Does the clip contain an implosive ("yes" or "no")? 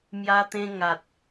no